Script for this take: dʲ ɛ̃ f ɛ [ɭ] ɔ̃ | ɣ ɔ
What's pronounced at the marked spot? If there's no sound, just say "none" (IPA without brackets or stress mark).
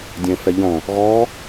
ʎ